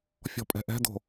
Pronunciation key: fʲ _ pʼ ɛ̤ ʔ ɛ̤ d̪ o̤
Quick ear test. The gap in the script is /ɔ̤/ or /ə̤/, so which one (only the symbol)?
ɔ̤